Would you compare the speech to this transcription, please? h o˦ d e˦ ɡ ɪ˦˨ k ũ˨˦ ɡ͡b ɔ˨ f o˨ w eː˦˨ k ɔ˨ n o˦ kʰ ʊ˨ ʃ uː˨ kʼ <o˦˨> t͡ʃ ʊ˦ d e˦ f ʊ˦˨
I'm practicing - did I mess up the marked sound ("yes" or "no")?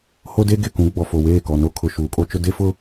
yes